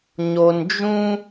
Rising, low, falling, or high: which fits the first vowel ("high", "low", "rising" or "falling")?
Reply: low